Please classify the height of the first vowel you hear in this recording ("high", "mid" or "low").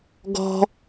mid